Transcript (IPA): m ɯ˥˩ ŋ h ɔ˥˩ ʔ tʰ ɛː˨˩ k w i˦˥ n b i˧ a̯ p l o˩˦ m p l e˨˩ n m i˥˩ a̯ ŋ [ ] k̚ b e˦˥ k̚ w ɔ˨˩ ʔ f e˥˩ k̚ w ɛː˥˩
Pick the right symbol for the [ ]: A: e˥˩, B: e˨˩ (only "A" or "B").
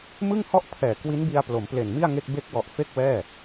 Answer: A